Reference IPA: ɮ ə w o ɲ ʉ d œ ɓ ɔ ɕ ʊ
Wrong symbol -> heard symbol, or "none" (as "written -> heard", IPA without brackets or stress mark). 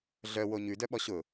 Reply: ə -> œ